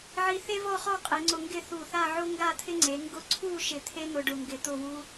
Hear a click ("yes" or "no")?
yes